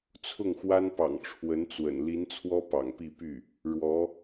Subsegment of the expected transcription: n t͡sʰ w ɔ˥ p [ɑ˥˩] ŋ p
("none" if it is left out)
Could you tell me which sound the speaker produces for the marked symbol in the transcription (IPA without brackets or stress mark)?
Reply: ɑ̰˨˩